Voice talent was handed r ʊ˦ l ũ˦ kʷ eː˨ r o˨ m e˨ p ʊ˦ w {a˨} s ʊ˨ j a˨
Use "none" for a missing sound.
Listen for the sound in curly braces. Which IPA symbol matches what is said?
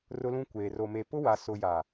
a˨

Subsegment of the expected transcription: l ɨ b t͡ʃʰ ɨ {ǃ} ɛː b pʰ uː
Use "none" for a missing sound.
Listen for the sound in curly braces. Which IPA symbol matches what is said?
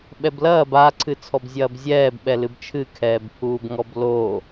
kʰ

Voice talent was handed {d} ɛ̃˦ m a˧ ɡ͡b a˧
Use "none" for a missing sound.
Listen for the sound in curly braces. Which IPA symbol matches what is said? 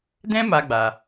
d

